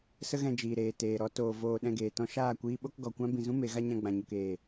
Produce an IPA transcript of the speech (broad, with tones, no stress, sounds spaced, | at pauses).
s ə˦ ɣ ɛ̃˧ d͡ʒ iː˨ ɾ eː˨ t eː˨ ɾ ɔ˧ t oː˨ v oː˧ ɗ ɛ̃˧ ɡ eː˨ t ɔ̃˦ ʃ aː˦˨ kʷ iː˦ ɓ o˦ k ɡ ɔ˨ kʷ ã˦ b ĩ˨ z ũ˦ m e˨˦ ɣ a˦ ɲ ã˧ ɡ͡b ã˨ ɲ u˨ k eː˦˨